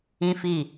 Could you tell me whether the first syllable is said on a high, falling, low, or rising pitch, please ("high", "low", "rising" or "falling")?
high